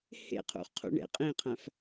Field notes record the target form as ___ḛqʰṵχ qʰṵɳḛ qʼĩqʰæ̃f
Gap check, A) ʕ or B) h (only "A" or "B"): B